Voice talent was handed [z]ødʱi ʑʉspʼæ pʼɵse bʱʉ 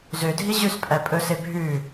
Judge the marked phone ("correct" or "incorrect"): correct